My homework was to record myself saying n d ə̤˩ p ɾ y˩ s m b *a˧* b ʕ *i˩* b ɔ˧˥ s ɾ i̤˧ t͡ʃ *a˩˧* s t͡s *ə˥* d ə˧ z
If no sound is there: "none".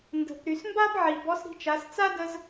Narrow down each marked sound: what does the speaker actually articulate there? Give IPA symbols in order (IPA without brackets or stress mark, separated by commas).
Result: a˥, i˩, a˩˧, a˥